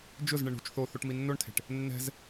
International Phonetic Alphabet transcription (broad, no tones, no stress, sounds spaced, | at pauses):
d͡ʒ ʊ z ɳ ɪ ɳ ṳ t͡ʃ θ o θ o ʈ m i nː o ɳ tʰ e̤ ʈ | nː ɛ̤ z